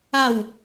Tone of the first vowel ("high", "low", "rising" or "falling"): falling